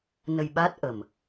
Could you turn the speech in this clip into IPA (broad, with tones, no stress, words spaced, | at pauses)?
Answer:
nə˧jɓa˦˥t̚ ʔə˨˩m